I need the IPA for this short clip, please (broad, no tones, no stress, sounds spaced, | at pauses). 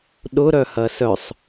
ɗ ʊ ɾ œ h ɐ s œ sˤ